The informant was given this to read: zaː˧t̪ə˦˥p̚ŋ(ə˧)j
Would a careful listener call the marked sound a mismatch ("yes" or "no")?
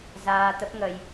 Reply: no